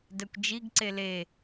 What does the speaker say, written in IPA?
dɛkʷd͡ʒiɡǀe le

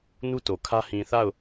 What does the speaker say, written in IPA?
nu˦to˨kʰä˦ hĩ˨θa˦˨ʊ̯

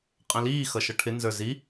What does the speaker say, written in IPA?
qʼə̃liː xʌʃʌʈʰɪ nzə˞zi

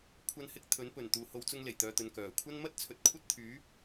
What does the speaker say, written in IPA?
kʷʰɐ˧n hɪ˧k̚ t̪ʰɵ˨˥npɵ˨˩n t̪uː˨ho˨˧w t͡sʊ˧ŋle˨˩jt̪œː˨t̪ɵ˨n kœː˨˩kʷʰɐ˥n mɐ˥t̚t͡sʰɵ˨˥t̚ kʷʰɐ˥t̚t̪ʰyː˨˥

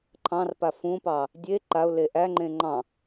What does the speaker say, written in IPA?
ǃʰɑ̃rpa fũpɑ | dʲe ǃaʊ̯le ʔæŋ͡ǃẽ ŋ͡ǃɑ̃

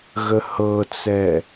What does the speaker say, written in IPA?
ɣəhɤt͡sɛ

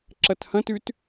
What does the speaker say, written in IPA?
ǁɐthɐ̃t ʉt

